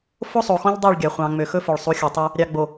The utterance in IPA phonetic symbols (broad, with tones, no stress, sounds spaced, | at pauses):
f o˦ sˤ o˨ x ɔ̃˦ ʎ dˤ ø˦˨ ɭ ɡʲ ɑ˨ χʷ ɑ̃˨ ŋ͡m ø˨ x ɵ˦ f ɵ˨ ɭ sˤ u˨˦ xʲ ɵ˨ tˤ ø˦ | ɾʲ ɑ˨ ɡ͡b o˨